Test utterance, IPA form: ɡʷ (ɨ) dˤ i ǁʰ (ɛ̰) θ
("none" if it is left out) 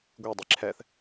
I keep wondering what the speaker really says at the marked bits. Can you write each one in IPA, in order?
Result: e, ɛ

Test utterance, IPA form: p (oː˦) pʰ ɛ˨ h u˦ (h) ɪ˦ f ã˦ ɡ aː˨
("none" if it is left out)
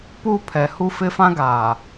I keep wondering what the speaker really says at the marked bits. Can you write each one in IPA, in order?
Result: uː˦, f

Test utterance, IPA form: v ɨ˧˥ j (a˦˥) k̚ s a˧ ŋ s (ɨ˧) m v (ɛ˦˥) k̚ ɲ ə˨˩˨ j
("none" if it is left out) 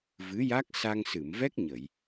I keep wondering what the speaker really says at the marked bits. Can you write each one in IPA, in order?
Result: a˦˥, ɨ˨˩˨, ɛ˦˥

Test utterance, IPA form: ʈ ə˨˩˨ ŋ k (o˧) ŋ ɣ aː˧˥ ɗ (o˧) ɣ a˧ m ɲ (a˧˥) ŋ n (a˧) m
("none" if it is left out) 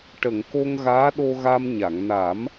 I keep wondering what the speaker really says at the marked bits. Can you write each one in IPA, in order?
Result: o˧, o˧, a˨˩˨, a˨˩˦

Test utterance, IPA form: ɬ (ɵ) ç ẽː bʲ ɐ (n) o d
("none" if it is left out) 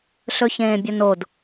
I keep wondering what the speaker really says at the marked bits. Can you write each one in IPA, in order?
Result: ɵ, n

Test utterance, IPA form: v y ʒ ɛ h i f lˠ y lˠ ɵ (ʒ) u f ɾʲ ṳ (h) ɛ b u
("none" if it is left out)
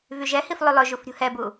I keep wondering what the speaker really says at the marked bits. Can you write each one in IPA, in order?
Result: ʒ, h

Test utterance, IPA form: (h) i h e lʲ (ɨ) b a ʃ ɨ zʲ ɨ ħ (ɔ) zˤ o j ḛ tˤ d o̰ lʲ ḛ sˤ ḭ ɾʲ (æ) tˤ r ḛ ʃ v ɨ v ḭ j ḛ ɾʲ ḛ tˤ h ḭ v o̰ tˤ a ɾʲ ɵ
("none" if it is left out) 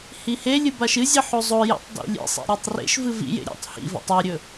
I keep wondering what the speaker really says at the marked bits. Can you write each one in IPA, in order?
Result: h, ɨ, o, a

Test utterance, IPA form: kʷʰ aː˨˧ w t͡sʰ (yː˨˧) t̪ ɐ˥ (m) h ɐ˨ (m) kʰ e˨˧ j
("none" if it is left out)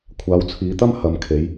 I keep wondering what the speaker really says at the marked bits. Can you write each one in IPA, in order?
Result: iː˨˧, m, m

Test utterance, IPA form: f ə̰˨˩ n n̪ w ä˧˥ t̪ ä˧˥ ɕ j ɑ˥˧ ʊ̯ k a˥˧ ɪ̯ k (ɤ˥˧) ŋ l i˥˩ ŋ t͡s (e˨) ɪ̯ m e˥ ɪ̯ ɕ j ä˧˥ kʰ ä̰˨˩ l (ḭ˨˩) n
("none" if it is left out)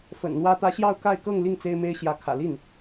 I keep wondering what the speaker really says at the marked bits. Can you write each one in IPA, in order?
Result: ɤ˥˧, e˥, i˥˩

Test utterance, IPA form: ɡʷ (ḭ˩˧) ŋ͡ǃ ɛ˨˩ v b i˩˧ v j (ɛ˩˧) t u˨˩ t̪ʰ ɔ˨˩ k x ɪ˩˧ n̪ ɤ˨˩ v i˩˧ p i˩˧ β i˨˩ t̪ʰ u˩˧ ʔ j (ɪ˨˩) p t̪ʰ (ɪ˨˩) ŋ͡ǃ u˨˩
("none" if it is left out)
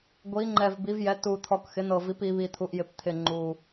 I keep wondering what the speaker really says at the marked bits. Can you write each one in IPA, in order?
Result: i˩˧, ɛ˩˧, ɪ˨˩, ɪ˨˩

